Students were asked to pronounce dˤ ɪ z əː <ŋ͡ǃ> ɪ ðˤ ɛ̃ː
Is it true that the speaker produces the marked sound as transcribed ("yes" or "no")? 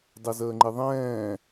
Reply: yes